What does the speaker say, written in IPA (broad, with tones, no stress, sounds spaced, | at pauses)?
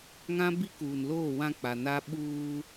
ŋ ã˦ b i˦ k uː˨ n l oː˦˨ w ã˦ k͡p a˨ n a˦ ɓ uː˦